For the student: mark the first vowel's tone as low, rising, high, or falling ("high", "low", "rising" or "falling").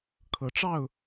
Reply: low